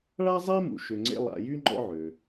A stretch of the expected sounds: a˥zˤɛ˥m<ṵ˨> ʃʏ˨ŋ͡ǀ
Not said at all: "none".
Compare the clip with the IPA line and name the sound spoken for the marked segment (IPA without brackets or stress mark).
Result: ṵ˩